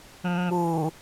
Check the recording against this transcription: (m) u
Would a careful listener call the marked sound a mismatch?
yes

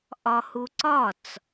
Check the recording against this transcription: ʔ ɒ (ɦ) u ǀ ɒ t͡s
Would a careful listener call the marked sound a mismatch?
yes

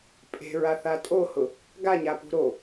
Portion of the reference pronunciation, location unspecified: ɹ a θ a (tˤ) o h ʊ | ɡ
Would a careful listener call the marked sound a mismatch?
yes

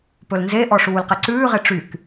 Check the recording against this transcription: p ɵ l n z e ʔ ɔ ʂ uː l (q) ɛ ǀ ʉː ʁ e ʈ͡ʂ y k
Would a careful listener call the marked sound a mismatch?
no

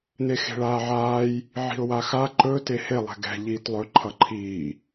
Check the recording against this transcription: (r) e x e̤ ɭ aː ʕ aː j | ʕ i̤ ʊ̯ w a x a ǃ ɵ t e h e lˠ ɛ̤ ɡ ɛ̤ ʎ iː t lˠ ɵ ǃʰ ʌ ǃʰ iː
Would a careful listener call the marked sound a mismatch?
yes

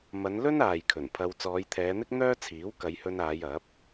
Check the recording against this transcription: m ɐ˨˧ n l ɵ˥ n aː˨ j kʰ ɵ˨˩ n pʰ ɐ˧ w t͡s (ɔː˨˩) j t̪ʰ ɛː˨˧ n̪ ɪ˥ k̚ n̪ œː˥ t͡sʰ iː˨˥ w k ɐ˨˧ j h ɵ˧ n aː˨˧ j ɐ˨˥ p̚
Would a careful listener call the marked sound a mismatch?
yes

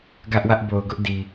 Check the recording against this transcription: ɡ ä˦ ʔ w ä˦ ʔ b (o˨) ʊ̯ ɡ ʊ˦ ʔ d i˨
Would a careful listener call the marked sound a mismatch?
no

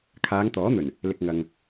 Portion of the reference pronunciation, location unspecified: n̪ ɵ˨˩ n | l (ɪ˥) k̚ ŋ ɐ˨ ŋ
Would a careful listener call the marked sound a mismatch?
yes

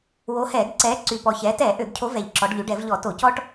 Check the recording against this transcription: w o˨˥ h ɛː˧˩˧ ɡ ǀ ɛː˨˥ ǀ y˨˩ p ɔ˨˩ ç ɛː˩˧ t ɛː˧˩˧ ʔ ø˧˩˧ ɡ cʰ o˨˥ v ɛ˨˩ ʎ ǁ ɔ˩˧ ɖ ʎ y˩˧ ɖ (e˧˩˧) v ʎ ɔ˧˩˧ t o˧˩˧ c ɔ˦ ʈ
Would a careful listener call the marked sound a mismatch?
yes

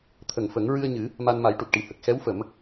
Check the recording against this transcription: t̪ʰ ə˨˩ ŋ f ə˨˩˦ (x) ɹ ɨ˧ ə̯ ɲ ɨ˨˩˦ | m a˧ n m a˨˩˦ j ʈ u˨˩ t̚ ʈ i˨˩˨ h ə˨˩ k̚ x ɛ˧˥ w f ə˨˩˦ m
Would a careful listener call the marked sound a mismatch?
yes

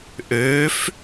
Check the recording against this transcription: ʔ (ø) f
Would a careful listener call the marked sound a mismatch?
no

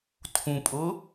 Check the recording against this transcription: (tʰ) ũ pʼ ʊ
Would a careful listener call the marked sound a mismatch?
no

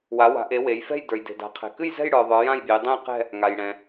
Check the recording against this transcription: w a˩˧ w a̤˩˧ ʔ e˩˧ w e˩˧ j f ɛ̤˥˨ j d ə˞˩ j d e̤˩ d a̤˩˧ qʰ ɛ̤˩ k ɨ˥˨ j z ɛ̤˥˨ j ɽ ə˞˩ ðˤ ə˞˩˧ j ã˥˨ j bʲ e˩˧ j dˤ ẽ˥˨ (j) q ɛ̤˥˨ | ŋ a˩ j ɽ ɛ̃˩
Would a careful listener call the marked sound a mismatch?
no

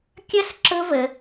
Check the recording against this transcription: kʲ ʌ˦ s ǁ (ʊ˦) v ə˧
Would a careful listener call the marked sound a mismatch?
no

